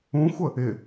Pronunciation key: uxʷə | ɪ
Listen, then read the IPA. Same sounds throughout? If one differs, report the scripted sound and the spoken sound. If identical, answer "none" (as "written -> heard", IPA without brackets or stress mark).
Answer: u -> ũ